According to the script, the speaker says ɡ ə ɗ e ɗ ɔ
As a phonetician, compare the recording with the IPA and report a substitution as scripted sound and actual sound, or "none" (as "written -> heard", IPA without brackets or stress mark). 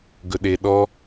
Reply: ə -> ɵ